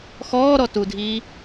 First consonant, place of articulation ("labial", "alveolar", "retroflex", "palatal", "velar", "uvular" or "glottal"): velar